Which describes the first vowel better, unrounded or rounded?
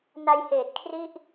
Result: unrounded